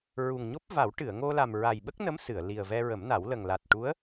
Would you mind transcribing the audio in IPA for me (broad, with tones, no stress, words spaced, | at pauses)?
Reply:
ɹu˨˩ŋɲo˦˥p̚ va˨˩˦w ʈɨ˨˩˨ə̯ŋo˧la˨˩m ɹa˨˩jɓə˦˥k̚nə˧˥m sɨ˨˩˨ə̯ li˨˩ə̯vɛ˧ ɹə˨˩˦mna˨˩˦w lə˨˩ŋla˨˩t̚ ʈu˧˥ə̯